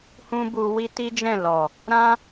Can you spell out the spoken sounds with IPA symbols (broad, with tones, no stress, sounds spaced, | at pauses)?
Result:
h ũ˦ b u˧ w i˦ t i˦ d͡ʒ ɛ̃˦˨ l ɔ˨ | ɾ ã˦